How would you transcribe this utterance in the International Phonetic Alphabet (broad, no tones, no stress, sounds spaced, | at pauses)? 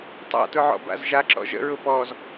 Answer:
tˤ a̰ t ʊ ʕ ɔ̰ b a̰ z ʒ a ǁ ɔ̰ ʒ ə̰ ɹ ʊ p ɔ z